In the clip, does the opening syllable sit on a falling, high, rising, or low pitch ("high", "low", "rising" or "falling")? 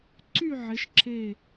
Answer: falling